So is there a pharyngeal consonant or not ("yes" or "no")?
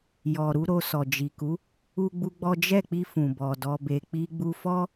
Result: no